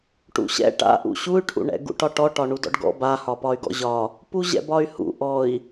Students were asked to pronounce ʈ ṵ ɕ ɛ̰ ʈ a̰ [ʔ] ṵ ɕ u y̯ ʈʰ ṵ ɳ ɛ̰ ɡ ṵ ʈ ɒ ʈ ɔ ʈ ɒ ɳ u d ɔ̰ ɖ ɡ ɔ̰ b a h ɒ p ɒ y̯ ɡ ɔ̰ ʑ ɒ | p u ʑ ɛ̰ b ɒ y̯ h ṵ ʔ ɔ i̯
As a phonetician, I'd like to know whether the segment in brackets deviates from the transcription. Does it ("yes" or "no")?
no